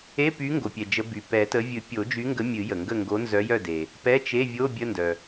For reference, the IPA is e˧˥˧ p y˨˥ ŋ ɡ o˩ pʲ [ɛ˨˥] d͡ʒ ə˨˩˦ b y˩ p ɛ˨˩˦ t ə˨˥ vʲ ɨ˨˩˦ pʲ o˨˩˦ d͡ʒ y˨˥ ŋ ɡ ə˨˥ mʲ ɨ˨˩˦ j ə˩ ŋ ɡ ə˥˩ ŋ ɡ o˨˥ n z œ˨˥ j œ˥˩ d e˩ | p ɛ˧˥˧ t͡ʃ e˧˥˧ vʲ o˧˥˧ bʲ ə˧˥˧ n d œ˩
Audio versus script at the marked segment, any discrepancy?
yes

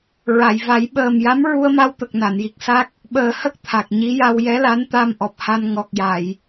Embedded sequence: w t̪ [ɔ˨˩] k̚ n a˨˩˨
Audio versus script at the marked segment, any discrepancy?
yes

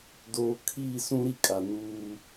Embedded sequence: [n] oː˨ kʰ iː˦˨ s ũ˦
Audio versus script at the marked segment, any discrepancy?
yes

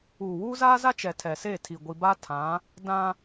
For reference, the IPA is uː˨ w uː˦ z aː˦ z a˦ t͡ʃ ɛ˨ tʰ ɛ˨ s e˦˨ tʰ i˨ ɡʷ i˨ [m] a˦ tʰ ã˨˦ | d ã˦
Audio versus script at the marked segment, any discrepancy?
yes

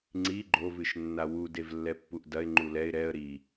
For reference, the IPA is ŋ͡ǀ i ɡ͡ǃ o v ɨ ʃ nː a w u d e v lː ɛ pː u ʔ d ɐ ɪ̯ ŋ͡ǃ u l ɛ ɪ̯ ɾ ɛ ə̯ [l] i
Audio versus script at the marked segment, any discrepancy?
yes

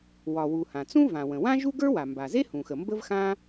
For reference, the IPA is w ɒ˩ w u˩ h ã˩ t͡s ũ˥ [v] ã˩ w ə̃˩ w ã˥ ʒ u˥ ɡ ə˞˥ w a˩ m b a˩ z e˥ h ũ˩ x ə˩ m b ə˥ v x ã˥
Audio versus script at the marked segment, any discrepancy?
no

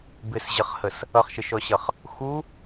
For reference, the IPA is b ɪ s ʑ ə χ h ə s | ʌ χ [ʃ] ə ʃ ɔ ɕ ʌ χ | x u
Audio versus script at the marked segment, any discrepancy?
no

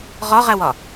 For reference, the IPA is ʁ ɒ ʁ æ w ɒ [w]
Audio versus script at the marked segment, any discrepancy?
yes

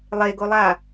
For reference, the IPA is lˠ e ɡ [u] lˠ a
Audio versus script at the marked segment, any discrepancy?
yes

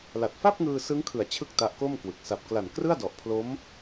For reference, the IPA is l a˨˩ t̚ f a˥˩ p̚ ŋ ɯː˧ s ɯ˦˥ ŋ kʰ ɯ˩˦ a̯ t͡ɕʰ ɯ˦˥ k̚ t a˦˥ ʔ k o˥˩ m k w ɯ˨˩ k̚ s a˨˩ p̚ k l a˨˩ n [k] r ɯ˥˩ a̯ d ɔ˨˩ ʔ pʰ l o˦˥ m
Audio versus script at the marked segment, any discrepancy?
no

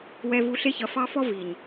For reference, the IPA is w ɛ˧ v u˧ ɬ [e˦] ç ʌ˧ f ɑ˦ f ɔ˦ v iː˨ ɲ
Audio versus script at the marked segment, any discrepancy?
no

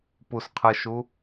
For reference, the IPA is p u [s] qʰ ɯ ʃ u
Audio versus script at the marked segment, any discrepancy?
no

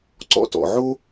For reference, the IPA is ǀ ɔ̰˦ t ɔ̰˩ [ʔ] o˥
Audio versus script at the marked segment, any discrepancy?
yes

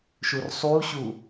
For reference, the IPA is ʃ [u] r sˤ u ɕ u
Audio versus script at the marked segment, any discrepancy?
no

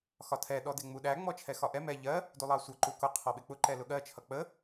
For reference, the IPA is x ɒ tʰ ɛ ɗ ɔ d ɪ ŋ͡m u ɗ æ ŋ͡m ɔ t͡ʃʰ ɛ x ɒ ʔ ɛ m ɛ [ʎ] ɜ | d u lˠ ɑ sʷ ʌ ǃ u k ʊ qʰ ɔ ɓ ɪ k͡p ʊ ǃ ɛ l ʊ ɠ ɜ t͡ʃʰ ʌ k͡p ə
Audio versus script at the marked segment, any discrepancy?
no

